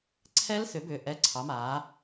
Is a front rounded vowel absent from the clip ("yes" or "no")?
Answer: no